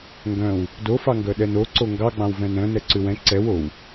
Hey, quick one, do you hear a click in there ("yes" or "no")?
yes